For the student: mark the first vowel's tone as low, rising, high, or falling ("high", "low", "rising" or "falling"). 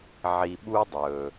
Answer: low